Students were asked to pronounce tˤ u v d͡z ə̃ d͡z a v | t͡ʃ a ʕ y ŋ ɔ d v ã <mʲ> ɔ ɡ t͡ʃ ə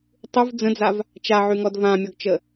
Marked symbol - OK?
yes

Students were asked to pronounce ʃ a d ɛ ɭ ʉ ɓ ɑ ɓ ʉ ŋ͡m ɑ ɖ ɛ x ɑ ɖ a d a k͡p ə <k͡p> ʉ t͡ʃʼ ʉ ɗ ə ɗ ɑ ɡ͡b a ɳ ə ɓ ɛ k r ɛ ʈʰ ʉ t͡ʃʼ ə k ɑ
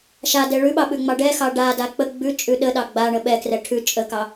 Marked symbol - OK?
no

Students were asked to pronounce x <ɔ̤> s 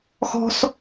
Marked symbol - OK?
yes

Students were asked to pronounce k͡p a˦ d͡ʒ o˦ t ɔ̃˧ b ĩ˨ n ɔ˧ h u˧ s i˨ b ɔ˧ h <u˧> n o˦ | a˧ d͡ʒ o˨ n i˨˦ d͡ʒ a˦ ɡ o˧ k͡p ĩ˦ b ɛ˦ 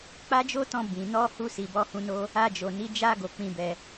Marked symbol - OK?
no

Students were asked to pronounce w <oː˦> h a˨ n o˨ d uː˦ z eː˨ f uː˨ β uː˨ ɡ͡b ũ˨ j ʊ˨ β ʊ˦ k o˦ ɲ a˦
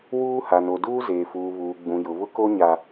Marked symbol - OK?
no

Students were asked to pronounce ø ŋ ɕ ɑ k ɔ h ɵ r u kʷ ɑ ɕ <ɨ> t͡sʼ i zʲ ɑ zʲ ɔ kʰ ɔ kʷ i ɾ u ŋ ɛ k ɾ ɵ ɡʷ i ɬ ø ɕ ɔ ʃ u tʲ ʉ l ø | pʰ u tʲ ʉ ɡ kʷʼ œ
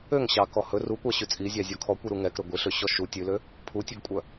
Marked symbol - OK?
no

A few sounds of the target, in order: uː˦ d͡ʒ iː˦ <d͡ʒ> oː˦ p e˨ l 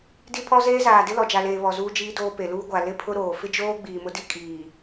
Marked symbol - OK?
no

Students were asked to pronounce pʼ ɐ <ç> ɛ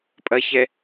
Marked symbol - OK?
yes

